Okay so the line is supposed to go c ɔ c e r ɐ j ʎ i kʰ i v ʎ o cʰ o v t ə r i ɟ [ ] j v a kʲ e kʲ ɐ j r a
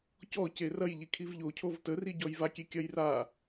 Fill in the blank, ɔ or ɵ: ɔ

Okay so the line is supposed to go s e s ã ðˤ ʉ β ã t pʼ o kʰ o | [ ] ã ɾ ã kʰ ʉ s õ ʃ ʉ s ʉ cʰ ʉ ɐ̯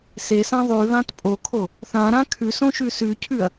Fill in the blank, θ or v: θ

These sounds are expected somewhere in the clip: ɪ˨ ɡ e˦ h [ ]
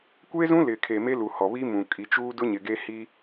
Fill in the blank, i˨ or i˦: i˦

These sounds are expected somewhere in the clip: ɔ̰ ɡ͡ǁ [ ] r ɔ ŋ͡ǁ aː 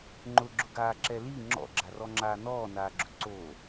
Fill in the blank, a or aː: a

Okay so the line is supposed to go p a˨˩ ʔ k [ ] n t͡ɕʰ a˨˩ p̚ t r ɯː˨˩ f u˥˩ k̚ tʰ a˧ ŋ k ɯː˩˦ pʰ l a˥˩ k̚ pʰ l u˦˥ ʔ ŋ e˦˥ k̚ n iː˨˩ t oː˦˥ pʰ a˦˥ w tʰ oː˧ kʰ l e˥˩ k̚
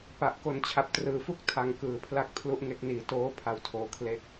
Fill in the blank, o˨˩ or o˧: o˨˩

